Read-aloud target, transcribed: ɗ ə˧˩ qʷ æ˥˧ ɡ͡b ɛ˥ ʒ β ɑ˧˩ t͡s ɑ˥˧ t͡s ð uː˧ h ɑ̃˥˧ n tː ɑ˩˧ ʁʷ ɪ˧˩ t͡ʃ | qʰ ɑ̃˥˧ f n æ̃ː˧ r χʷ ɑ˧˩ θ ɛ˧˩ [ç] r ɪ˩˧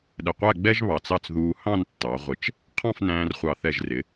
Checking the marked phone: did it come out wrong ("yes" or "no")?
yes